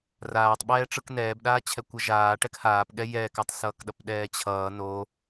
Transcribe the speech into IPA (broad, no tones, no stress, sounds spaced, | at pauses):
r aː tˤ ɓ ɛː ʈ͡ʂ ɯ k n ɛː b ɗ aː t͡ɕʰ ɛ kʷ ʌ ʒ aː ʈ ɛ k h aː p ɠ ɛ j ɛː k a tˤ s ʌː k ɗ ʌ p ɗ ɛː t͡ɕʰ ʌː n o